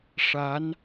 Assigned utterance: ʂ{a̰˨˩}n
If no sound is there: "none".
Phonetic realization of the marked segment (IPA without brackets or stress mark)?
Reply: a˧˥